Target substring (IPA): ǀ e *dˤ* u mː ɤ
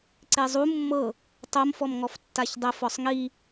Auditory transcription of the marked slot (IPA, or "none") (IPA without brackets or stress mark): zˤ